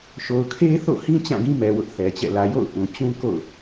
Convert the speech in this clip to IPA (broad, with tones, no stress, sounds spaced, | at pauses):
ʃ o˨ ʊ̯ kʰ e˦ θ o̰˦˨ h ĩ˦ t͡ɕ ã˦˨ ɡ ĩ˦ m ɛ˨ w ʊ˦ ʔ θ ɛ˨ t͡ɕ ɛ̰˦˨ l ä˨ j o̰˦˨ ʊ̯ ʔ ũ˨ t͡ɕ ũ˦ k o̰˦˨ ʊ̯